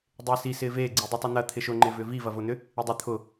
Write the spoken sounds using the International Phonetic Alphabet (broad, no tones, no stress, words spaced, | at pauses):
dˤɪːsi sɪːveː ɡ͡ǀidˤytˤun̪ɐ t̪ʰɪʃʊ ŋ͡ǃɪvʏːvi vɐvʊːn̪ʏ | idˤʊ t̪ʰʊ